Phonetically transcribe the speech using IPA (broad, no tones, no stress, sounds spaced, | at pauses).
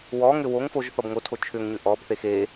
w ɔ ŋ ʏ w o ŋ f o ʒ θ ɔ b ŋ o tʰ o t͡ʃʰ ʏ ŋ ɲ ʏ ʔ ɔ b θ e x e